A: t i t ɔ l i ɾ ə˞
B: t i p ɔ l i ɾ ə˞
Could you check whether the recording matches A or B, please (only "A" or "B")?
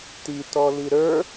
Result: A